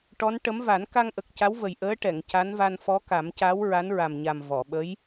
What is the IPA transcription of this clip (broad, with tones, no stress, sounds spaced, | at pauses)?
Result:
ʈ ɔ˧˥ n ʈ ə˧˥ m v a˨˩˦ n k a˧ ŋ ʔ ə˨˩ k̚ c a˧˥ w v ə˨˩ j ʔ əː˧˥ ʈ ɛ˨˩˨ ŋ c a˧˥ n v a˧ n f ɔ˧˥ k a˨˩˦ m c a˧˥ w ɹ a˧˥ n ɹ a˨˩ m ɲ a˨˩ m v ɔ˨˩˨ ɓ ə˧˥ j